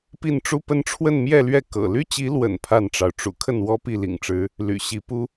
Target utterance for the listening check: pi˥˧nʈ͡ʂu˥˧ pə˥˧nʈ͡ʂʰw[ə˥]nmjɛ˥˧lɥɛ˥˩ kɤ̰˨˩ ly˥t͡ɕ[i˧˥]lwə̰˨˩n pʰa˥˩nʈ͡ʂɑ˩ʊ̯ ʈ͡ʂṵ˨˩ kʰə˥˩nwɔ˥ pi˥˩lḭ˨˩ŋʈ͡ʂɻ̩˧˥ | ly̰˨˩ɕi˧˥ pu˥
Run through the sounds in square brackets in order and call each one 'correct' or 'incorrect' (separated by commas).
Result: incorrect, correct